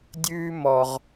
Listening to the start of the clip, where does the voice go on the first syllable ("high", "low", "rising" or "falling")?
high